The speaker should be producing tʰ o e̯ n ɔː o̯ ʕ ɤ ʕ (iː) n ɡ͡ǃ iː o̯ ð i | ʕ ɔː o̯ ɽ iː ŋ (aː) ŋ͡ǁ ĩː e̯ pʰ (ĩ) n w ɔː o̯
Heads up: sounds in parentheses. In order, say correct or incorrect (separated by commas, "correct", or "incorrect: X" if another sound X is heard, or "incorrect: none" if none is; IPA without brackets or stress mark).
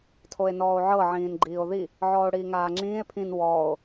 incorrect: ĩː, correct, correct